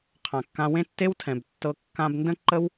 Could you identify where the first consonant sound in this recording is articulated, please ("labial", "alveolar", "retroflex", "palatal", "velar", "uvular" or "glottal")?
uvular